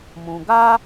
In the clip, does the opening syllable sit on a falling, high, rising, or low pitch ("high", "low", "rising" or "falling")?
low